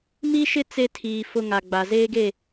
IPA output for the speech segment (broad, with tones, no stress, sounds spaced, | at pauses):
m i˦ ʃ ɪ˦ t͡s e˦ tʰ iː˨ f ʊ˦ ŋ a˨ ɡ͡b a˨ z eː˦ ɡ e˦˨